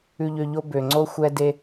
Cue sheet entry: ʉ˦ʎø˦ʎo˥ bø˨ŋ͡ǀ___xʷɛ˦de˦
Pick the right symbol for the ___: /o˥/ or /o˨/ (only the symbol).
o˥